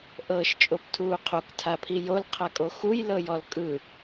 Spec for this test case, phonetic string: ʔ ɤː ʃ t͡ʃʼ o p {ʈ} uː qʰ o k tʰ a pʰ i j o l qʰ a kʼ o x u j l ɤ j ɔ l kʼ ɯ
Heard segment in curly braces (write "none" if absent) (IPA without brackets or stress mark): tʰ